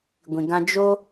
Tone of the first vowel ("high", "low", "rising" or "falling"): low